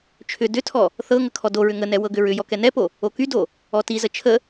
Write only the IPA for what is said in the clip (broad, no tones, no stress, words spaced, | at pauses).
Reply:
t͡ʃʰʏ dʏtʰɔ | θɤŋə kʰɔdoɹʏ ŋənɛ wɤɡʏɹʏjɔ kɛnɛpo | okydo | ɔtizə t͡ʃʰə